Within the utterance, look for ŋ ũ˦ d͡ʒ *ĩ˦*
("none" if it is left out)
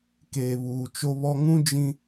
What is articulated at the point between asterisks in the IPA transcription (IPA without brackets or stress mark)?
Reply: ĩ˦